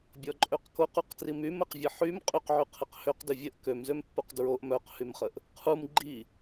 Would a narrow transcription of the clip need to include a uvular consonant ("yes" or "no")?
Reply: yes